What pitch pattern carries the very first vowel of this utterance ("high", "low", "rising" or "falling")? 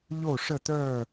falling